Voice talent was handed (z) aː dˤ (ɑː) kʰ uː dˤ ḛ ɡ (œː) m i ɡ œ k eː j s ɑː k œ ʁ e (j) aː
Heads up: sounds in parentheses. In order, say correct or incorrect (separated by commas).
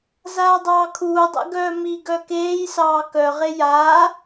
correct, correct, correct, correct